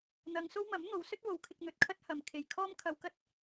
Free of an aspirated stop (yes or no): no